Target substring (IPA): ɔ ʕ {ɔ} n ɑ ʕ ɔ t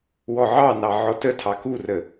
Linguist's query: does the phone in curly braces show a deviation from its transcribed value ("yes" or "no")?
yes